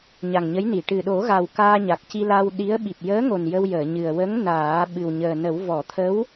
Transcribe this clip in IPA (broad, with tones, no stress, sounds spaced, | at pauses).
ɲ a˨˩ ŋ ɲ ə˧˥ j n i˨˩˨ ʈ ɨ˨˩ ɗ o˨˩˦ ɣ a˨˩ w k aː˧ ɲ a˨˩ k̚ c i˧ l a˧ w ɗ i˧˥ ə̯ ɓ i˨˩ p̚ j əː˧˥ ŋ o˨˩ n j ə˧ w j əː˨˩˨ ɲ ɨ˨˩ ə̯ w ə˧˥ ŋ n aː˨˩˦ ɓ ɨ˨˩ w ɲ əː˨˩ n ə˨˩˦ w v ɔ˨˩˨ t̪ʰ ə˧˥ w